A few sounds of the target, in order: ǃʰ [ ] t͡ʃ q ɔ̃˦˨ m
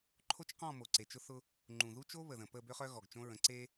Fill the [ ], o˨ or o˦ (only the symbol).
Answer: o˦